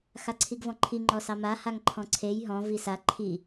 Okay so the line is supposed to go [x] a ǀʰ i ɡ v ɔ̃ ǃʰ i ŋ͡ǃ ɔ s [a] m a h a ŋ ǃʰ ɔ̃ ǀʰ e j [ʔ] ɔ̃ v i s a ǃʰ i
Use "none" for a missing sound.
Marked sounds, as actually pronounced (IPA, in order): x, ɑ, ɦ

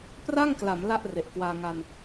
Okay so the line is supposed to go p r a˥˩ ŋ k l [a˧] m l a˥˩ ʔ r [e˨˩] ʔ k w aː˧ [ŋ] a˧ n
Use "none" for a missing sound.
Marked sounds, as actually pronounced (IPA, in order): a˩˦, e˨˩, ŋ

